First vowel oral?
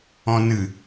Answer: no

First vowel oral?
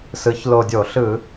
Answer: yes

